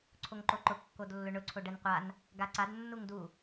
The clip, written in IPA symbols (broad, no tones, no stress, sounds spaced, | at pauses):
ǀʰ o ŋ ǃ o ǃ ʊ kː o d lː ʊ ɳ ʊ ǀʰ o ɖ ɛ n qʷ a n | ɡ a ǀ a d nː u ŋ d u